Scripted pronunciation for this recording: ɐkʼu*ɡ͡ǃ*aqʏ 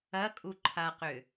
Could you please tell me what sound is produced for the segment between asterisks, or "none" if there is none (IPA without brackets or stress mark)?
ǃʰ